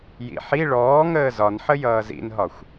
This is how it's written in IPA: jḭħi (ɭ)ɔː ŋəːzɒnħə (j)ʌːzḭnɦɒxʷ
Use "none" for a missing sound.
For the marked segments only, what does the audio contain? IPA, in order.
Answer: ɭ, j

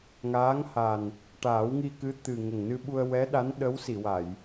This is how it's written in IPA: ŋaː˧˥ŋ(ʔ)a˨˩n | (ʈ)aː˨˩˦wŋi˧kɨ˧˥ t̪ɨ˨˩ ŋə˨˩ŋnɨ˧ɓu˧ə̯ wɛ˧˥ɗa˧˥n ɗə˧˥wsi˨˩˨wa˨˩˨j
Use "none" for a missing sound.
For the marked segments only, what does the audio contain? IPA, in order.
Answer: h, ʈ

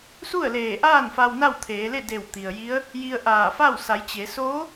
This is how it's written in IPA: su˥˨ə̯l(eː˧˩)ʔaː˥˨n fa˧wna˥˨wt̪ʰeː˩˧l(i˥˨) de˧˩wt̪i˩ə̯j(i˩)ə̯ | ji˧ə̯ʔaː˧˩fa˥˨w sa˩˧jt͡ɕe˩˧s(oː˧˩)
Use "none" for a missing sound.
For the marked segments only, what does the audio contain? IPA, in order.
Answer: eː˧˩, e˥˨, i˧˥, oː˧˥

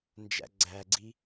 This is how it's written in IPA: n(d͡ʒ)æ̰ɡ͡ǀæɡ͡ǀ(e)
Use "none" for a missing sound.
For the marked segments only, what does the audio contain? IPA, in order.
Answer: d͡ʒ, i

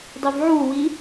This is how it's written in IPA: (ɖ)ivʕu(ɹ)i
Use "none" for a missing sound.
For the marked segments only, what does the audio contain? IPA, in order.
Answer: dˤ, w

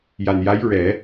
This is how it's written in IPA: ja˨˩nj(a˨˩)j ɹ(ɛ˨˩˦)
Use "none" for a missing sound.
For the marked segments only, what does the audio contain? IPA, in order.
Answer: a˧˥, ɛ˨˩˦

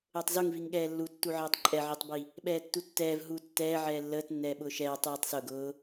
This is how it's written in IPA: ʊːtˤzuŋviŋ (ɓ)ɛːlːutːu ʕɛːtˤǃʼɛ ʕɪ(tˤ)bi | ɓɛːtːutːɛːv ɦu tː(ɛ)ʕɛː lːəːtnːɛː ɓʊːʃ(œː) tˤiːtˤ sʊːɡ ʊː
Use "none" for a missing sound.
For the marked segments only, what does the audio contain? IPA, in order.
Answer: ɠ, tˤ, ɛː, ɛː

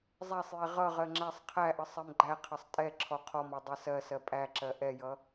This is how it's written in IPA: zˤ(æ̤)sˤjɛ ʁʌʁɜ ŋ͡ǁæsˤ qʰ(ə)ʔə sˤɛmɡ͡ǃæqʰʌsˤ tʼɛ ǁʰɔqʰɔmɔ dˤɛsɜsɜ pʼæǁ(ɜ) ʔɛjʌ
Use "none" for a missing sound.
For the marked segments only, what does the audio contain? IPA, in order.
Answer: æ, æ, ɜ

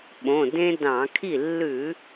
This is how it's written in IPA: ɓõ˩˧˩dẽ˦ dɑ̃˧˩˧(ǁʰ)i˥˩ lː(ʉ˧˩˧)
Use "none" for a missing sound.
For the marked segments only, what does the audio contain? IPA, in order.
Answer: kʰ, ʉ˧˩˧

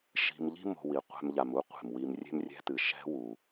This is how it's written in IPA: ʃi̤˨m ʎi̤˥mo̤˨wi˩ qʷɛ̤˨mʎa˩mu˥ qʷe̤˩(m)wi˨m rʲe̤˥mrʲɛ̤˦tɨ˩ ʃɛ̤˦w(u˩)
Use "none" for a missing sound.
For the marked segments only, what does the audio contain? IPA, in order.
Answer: m, u˩

